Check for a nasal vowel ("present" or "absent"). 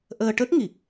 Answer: absent